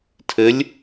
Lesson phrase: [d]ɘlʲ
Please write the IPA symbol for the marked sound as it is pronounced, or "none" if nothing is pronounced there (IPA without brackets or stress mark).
tʰ